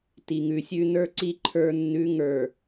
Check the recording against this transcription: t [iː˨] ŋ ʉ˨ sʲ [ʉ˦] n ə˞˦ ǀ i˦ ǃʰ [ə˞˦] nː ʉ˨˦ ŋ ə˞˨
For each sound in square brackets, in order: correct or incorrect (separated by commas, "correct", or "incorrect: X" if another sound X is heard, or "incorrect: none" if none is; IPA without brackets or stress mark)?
incorrect: i˨, correct, correct